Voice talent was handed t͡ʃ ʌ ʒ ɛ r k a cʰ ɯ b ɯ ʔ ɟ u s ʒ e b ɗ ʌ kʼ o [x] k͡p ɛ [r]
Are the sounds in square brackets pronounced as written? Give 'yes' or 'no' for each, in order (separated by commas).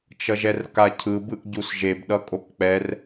no, yes